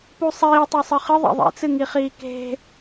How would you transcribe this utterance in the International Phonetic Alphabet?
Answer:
pusˤiː tˤosˤɨχɨ ðˤḛðˤḛt͡sɨŋi χiːke̤

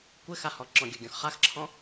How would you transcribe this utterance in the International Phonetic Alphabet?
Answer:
kʷɘ xahɔ ǁɔ̃ɡʲɵɡʲɔ̃x χaxǁʰɔ̃

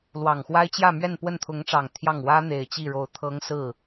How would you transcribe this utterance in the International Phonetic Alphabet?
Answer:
lwɑ˨˩ŋxwa˥ɪ̯ t͡ɕjä˥˧ mɥɛ˥˧npwə˥˩nt̪ʰʊ˧˥ŋʈ͡ʂɑ˨˩ŋ t̪ʰjɑ˥˩ŋ wä˥n̪e˨˩ɪ̯ t͡ɕi˥˩ɻo˧˥ʊ̯ t̪ʰɤ˧˥ŋ sɹ̩˥˩

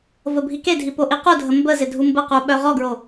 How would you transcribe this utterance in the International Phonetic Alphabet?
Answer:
vəbʱikedʱi poʔiqudʱə mbə zɪdʱumbəqu ɓœʁɔɡɹo

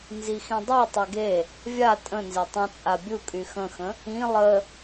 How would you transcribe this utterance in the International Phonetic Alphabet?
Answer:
nzixĩdˤe tˤeɡe | vʲa tʼə̃nze tˤə̃ t͡sʼabʲukʼy xə̃xə̃ | ĩ lˠə

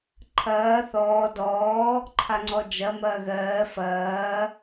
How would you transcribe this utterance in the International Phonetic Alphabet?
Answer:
ǃʰɐː θɔː dɔː | ǃʰaŋ͡ǀɔd͡ʒɐ mɐːɣɜː fɐː

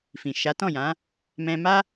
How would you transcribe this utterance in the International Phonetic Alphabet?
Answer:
fĩ˨ʃa˨˦tɔ̃˦˨jã˨˦ | mɛ̃˧ma˦

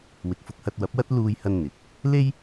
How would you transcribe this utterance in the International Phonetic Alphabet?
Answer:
wɪ˨k̚fʊ˧k̚hɐ˧t̚ wɐ˨˥p̚wɐ˥t̚ luː˧jhɐ˧n n̪ɪ˨˥k̚ | le˥j

